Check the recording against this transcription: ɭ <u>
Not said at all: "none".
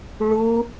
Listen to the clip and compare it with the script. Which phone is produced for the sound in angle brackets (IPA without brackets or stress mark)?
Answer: u